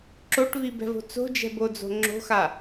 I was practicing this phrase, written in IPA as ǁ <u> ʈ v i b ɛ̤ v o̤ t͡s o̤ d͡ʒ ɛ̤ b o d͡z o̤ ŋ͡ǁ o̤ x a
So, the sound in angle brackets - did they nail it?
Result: no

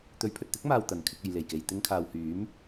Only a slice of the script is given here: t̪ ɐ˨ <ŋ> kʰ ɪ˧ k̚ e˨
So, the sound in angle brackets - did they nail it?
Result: no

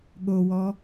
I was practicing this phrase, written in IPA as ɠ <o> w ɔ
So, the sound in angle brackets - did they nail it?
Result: yes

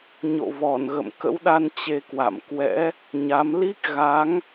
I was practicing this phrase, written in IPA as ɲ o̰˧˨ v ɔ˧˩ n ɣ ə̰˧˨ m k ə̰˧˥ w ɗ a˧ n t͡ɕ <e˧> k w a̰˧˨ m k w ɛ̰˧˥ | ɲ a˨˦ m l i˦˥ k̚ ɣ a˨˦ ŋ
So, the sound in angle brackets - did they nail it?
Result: yes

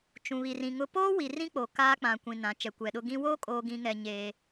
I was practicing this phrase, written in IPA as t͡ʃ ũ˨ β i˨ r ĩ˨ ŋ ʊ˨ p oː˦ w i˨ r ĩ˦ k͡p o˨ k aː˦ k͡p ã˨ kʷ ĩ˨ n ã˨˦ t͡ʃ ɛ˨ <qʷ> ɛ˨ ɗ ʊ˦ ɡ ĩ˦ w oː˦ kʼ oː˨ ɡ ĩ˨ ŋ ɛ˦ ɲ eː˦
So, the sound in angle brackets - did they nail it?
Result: no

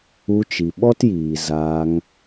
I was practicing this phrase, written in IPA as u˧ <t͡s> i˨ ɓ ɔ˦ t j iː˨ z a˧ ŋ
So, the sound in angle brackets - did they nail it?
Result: no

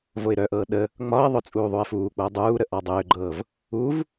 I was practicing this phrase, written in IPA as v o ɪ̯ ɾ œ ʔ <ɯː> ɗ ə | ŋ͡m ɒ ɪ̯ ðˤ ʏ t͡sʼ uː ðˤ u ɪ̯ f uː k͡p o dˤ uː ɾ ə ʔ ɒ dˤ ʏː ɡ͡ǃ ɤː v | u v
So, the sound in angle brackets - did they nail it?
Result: no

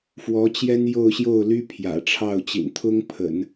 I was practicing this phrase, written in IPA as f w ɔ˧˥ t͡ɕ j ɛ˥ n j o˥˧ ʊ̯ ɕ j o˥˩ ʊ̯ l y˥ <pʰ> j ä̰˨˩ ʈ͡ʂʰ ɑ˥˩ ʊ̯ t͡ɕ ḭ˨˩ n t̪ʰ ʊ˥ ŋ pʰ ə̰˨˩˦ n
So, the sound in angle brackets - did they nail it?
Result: yes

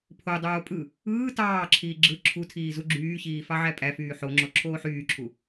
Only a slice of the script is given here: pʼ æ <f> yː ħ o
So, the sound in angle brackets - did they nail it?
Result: yes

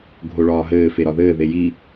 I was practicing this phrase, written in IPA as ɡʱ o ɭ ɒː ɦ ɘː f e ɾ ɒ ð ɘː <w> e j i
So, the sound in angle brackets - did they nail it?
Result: no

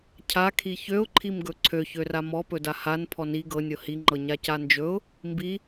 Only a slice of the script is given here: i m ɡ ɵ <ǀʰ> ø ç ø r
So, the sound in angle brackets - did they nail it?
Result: yes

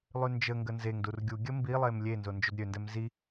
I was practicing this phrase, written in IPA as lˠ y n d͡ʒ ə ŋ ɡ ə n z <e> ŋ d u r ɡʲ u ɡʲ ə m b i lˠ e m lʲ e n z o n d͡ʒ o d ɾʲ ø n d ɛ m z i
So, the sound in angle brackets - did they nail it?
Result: yes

